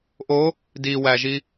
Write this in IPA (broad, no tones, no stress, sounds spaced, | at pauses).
ʔ o | d i w æ ʒ i